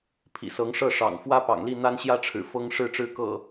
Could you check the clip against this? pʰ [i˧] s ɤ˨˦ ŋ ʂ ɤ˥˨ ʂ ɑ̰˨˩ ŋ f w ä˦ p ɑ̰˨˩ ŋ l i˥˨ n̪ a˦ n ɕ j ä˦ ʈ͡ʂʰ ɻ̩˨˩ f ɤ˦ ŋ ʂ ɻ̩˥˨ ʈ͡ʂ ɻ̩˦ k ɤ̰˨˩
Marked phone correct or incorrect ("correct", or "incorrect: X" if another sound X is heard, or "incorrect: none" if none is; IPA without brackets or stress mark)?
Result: incorrect: ḭ˨˩